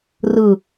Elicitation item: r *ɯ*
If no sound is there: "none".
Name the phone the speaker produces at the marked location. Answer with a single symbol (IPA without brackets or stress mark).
ɯ